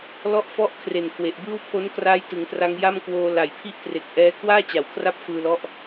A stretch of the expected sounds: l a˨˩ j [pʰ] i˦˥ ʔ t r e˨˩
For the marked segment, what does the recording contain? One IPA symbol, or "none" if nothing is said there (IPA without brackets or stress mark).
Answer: pʰ